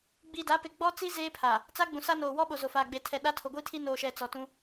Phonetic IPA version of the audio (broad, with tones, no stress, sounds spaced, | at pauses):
ɡ͡b iː˨ d a˨˦ p e˨ ɡ͡b ɔ˦ t͡s i˦ z eː˦ pʰ a˨ | t͡s a˦ ɡ͡b ũ˨ s a˦ n oː˨ w ɔ˦ ɓ o˨ z o˨ f aː˨ ɡ͡b e˨ tʰ ɛ˨ ɗ a˦ tʰ o˨ ɡʷ i˦ tʰ i˦ n oː˨ ʃ ɛ˨ t͡s ɔ˨ t ũ˦